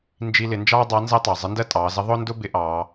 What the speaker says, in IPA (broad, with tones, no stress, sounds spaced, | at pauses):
n d͡ʒ i˧ l ɪ˩˧ n d͡ʒ ɑː˥ dˤ ɑ˧˥ n z əː˥ tˤ ɑ˩ zˤ ɪ˧˥ n d ɜ˥ tʼ ɑː˩˧ z ə˧˥ ðˤ ʊː˥ n d ʊ˥ b ɪ˧˥ ʔ ɑː˩˧